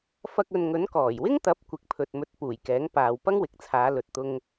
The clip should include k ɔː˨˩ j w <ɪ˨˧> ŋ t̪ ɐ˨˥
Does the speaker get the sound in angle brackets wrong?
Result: yes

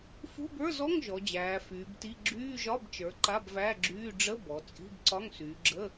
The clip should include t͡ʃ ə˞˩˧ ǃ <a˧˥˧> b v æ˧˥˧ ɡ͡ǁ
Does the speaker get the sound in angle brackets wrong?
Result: no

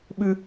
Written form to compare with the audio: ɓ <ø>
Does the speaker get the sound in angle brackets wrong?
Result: yes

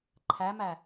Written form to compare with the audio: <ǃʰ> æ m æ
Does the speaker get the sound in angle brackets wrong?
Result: no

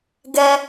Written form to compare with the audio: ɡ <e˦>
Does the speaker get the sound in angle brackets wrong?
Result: yes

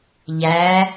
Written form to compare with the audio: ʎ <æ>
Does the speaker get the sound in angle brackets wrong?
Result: no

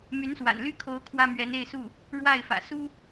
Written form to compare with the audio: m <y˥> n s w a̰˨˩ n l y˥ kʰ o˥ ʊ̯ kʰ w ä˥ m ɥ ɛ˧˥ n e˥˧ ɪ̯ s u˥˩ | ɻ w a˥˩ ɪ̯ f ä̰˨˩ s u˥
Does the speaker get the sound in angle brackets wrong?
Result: yes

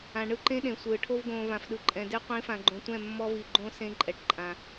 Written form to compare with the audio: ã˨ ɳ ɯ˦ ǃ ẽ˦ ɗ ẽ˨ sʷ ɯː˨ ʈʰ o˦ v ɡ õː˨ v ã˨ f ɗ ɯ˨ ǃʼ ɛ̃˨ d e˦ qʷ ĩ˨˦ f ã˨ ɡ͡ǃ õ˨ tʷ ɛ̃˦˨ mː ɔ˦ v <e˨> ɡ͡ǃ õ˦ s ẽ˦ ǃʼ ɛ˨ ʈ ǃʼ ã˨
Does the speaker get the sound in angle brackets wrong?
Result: yes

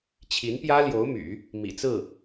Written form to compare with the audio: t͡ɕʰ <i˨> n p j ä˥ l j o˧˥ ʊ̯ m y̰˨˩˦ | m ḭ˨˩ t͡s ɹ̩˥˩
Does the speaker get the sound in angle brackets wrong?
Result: yes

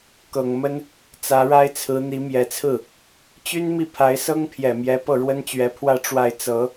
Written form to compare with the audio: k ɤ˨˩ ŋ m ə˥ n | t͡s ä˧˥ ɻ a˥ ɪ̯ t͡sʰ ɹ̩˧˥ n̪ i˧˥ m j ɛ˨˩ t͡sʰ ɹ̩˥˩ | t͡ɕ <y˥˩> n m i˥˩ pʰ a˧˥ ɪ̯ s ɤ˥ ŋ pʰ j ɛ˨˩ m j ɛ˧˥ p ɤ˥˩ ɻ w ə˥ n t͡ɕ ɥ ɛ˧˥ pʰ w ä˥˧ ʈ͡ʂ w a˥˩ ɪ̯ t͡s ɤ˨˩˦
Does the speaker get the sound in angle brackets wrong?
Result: yes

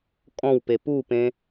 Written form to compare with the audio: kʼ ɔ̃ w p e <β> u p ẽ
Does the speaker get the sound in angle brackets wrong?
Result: yes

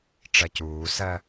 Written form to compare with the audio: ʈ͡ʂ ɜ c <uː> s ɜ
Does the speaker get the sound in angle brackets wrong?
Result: no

